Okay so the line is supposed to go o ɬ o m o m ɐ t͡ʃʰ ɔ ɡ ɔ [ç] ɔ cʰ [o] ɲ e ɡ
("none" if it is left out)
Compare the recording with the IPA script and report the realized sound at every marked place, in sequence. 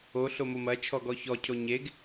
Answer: ç, o

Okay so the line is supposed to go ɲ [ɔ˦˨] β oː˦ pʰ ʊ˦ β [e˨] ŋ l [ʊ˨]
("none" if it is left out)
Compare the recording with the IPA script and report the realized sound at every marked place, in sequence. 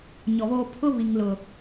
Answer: ɔ˨, i˨, ʊ˨

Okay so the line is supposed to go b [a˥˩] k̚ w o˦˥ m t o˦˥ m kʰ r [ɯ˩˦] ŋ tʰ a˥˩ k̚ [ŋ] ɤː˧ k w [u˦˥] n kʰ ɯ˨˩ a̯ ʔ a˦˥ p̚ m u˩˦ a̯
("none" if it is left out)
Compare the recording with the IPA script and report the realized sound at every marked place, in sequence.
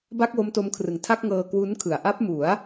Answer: a˥˩, ɯ˩˦, ŋ, u˦˥

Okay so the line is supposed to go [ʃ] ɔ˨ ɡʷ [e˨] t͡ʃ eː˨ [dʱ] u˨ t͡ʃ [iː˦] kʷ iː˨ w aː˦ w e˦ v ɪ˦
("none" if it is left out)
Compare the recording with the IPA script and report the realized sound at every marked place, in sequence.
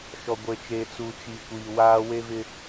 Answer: ʃ, e˨, t͡s, iː˨

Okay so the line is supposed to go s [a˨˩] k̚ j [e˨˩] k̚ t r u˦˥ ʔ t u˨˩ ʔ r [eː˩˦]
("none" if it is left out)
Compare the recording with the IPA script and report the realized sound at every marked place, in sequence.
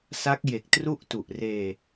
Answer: a˦˥, e˨˩, eː˧

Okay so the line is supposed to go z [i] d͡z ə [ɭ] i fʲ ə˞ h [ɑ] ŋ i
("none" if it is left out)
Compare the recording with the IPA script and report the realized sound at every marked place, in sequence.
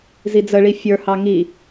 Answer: i, ɭ, ɑ

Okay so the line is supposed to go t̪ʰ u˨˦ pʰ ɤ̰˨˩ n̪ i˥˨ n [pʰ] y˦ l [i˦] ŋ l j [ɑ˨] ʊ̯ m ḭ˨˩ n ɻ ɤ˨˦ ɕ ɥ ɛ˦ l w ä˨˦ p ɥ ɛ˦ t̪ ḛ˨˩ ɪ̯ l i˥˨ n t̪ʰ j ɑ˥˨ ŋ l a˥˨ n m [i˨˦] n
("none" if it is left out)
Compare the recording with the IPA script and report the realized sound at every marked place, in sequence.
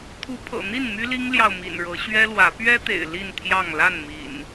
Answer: m, i˦, ɑ˨, ḭ˨˩

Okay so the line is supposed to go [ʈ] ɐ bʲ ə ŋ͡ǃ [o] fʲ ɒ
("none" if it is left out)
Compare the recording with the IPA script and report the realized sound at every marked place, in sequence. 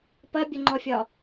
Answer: p, ɔ

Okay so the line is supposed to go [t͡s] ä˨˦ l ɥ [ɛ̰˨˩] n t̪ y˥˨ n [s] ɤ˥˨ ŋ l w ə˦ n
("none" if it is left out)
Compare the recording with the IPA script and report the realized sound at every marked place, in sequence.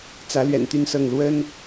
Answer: t͡s, ɛ̰˨˩, s

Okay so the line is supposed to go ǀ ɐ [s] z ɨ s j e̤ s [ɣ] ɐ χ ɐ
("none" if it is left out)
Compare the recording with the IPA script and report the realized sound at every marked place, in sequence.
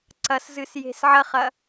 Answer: s, ʕ

